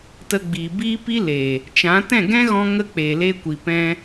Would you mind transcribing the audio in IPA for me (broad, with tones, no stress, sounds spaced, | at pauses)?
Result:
t ə˧ ɡ͡b iː˨ b iː˦ p i˦ l eː˨ | t͡ʃ ã˨˦ t ɛ̃˦˨ ɡ ɛ̃˦ ɣ ɔ̃˧ ŋ ə˦ k͡p eː˨ l eː˧ kʷ i˨ p ɛ̃˧